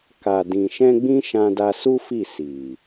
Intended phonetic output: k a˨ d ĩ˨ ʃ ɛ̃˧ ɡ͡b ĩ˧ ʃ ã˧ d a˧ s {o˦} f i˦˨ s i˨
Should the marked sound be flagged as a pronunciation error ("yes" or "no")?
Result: yes